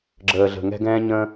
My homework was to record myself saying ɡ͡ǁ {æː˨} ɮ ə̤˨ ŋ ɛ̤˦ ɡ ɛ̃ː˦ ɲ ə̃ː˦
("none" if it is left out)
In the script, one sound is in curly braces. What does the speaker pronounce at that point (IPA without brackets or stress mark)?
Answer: əː˨